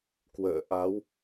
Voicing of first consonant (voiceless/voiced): voiceless